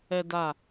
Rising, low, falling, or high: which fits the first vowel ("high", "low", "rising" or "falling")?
low